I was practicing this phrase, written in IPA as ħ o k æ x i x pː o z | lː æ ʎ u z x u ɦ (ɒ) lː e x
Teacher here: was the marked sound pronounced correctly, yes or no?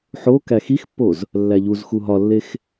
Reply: yes